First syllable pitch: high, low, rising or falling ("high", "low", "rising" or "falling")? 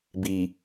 low